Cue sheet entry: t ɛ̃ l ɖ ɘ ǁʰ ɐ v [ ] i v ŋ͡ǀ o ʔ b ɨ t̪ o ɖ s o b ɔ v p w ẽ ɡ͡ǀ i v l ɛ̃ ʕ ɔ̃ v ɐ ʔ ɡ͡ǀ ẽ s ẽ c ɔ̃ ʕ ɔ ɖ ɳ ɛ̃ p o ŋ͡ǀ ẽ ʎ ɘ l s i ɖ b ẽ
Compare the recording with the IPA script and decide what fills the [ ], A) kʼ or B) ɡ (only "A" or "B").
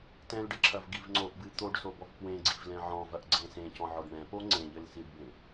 B